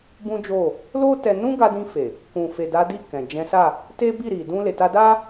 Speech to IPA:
b ũ˦ d͡ʒ o˦˨ | l o˦ t ɛ˧ n ũ˦ ɡ a˧ d ĩ˧ f e˨ | k ũ˨ f e˨ d a˨˦ d i˦˨ k ɛ̃˨ d͡ʒ ɛ̃˨˦ s a˦˨ | t e˦ b i˦˨ ɾ i˨ d ũ˧ l e˨ t a˧ d a˦

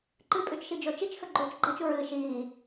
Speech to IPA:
ǃ ɨ pʼ ʉ t͡ʃ ʃ i d͡ʒ o t͡ʃ i t͡ʃ x ɵ ɡ͡ǃ oː t͡ʃ ɡ͡ǃ ɐ t͡ʃ u ɹ ɨː ʃ iː

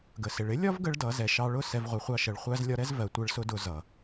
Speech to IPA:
ɡ ə˨ s ɪ˨ ɭ ɪ˦ lʲ ɒ˦ v ɡ ə˦ ɭ d ʌ˨˦ z ɛ˨ ʃ ɑ˧ ɭ ʊ˦ s ɛ˧ v ʁʷ ɪ˨˦ χʷ ɑ˦ ʃ ə˨˦ ɭ χʷ æ˧ z lʲ ɒ˧ ɾ ɛ˦ z v ɜ˨ tʷ ɜ˧ ɭ s ʊ˧ d ʊ˧ z ʌ˨

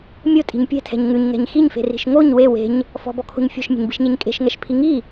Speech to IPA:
mʲ o tʼ i̤ ɲ pʲ ɛ̤ tʰ ɛ̤ ɲ ŋ ʉ ɲ ŋ ɛ̤ ɲ x i ɲ f e̤ r i̤ ʃ ŋ o ɲ w e w e̤ ɲ | f ɔ̤ b ɔ kʰ o̤ ɲ fʲ ɔ̤ ʃ mʲ e̤ ɲ b i̤ ʃ ɲ e ɲ kʼ e̤ ʃ ŋ ɛ ʃ pʰ i ŋ i

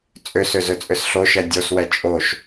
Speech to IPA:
t͡sʼ ʏ s ʏ z ø t͡sʼ ʏ s ɬ o ʃ ɛ dʲ o s w ɛ t͡ʃʼ o ʃ

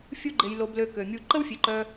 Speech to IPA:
fʲ u˦ ɡ͡ǃ e˧ j l o˧ b l ø˧ k ø˨ mʲ u˧ ǃ ə˦ w fʲ e˨˦ ǃ œ˧

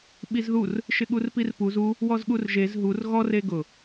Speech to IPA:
ɓ i z ð u r | ʃ ɪ ɠ u r p i r p u z u | w ɔ z ɠ u r ʒ e z ɦ u r ɣ ɔ r e ɡ ʊ

